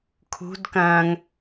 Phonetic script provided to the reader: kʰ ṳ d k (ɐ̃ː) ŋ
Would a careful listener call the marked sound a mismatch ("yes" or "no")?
no